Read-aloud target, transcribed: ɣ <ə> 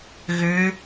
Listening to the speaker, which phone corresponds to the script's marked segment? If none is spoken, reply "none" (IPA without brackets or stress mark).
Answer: ʏ